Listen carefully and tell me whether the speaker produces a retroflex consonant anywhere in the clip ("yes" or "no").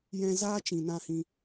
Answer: no